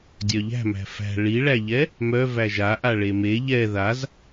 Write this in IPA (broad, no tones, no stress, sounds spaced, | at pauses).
dʲ œ ʎ æ̤ m æ̤ f æ̤ ɭ i ɭ æ ʎ ɛ | m œ v æ ʒ a ʔ a ɭ e m e ʎ ɛ ð a z